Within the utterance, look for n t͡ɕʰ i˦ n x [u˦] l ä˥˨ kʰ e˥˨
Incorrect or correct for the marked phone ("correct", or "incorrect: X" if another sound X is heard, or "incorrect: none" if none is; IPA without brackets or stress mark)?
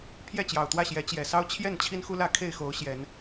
correct